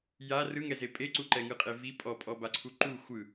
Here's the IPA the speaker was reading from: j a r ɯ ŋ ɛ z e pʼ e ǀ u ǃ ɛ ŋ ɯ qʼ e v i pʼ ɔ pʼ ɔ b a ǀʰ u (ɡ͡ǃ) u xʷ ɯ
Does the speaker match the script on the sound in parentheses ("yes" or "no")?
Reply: no